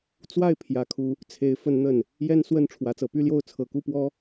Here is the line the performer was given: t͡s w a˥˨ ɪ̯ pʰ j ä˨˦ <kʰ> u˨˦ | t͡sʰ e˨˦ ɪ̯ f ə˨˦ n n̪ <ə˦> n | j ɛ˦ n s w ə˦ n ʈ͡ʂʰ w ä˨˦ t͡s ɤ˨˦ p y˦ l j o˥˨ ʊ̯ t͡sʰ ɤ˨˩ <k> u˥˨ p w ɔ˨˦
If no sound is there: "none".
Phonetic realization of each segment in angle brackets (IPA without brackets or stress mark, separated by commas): kʰ, ə˨˩, k